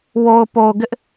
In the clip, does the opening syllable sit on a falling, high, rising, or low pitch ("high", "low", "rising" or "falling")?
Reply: low